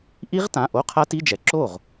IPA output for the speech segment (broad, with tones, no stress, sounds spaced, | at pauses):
ʔ i˦˥ ʁ t ã˩˧˩ ʔ o˧˥˧ qʰ a˦˥ t i˧˥˧ d͡ʒ ɛ˩˧ ǁ o˥˩ ʁ